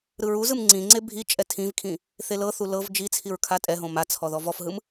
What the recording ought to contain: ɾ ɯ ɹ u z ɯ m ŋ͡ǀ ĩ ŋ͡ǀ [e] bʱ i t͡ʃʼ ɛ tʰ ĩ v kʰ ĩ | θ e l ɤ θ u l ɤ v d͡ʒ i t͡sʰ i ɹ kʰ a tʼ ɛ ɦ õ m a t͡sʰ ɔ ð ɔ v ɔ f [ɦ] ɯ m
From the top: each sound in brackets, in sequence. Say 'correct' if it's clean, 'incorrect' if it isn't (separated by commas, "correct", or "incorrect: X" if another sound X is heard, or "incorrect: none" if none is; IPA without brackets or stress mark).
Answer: correct, correct